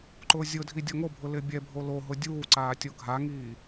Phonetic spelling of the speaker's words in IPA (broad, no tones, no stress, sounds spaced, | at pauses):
ǃ ʊː zʲ ʊ dʱ i dʲ ɔ ŋ o bʱ ʊ l ɪ bʲ ɛ bʱ o l o ɦ ʊ dʲ uː ǀ aː tʲ o ɡʱ a ŋ iː